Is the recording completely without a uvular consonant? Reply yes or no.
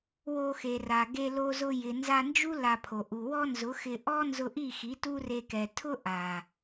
yes